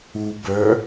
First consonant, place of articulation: labial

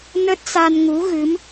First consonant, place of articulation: alveolar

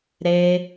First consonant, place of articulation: alveolar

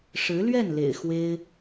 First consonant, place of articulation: retroflex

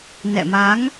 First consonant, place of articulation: alveolar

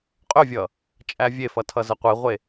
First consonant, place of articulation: uvular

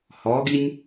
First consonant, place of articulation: glottal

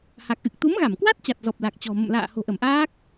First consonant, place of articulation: glottal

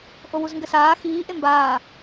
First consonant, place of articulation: glottal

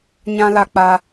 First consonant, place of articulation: palatal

